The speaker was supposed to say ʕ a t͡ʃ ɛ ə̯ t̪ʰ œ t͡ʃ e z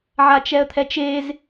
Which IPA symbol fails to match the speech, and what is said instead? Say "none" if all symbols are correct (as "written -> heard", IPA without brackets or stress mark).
œ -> ɛ